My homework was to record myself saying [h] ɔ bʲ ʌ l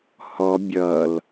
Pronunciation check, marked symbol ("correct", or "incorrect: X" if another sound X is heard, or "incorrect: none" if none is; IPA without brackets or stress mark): correct